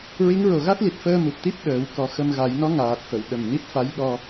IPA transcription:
ɹ i˧˥ ŋ ɹ o˨˩ ɣ a˦˥ t̚ l i˨˩ t̚ f əː˧ m u˨˩ p̚ t̪ i˦˥ p̚ ɗ əː˨˩˦ w k ɔ˧˥ x ə˧ m ɣ a˨˩˦ j n ɔ˧˥ ŋ aː˨˩ t̚ f ə˨˩˨ w ɗ ə˨˩ m n i˦˥ t̚ f a˧˥ j ɗ ɔ˧

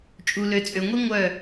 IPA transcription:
t͡ʃʼ u˨ l ø˨ t͡sʼ ø˨ ŋʷ i˦ ŋʷ œ˦˨

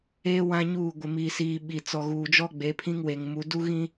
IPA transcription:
eː˦ w ã˦ ɲ uː˦˨ ɡʷ ɪ˨ m iː˨ s iː˨ ɓ i˨ t͡s ɔ˨ ɣ uː˨ d͡ʒ ɔ˦ ɡ͡b e˨˦ pʰ ĩ˦ ŋ w e˨ ŋ m u˨˦ d u˦ ɣ ĩ˦

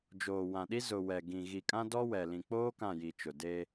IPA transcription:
d͡ʒ oː˨ w ã˨ ɗ i˦ z ʊ˨ w ɛ˨ ɡ ĩ˨ ɣ i˨ kʼ ã˦ d ɔ˦ w ɛ˨ l ĩ˨ k͡p oː˦ k ã˦˨ j i˨ t͡ʃ ʊ˨ d e˦

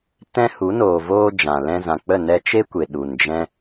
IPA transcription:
t ɛ̃˦ h u˨˦ n oː˨ v oː˧ d͡ʒ ã˨ l ɛ̃˧ z ã˨ k͡p ə˦˨ n ɛ˧ t͡ʃ e˦ kʷ e˨ ɗ u˨ n d͡ʒ ɛ̃˦

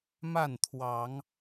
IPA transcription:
m a˥˨ n t̪ʰ w ɑ˨˦ ŋ

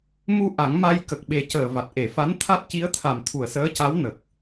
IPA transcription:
m u˧ ʔ a˨˩˦ ŋ m a˧ j k ə˨˩ k̚ ɓ e˨˩ c əː˨˩ v a˨˩ t̚ ʔ e˨˩˨ f a˧˥ n t̪ʰ a˦˥ t̚ c i˧˥ ə̯ t̪ʰ a˨˩ m t̪ʰ u˨˩ ə̯ s əː˧˥ c a˧˥ w n ə˨˩ k̚

